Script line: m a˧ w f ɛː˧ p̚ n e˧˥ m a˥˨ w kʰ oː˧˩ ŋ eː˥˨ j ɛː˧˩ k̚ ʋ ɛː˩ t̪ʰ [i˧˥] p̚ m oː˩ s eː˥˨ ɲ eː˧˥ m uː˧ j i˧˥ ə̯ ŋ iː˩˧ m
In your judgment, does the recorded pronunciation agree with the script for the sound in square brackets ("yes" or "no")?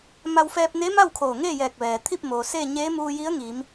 no